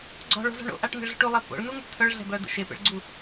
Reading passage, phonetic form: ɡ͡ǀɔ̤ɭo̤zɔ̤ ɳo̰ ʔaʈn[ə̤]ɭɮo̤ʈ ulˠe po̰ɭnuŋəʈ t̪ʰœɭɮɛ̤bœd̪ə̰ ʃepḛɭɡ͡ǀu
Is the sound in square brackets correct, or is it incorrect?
correct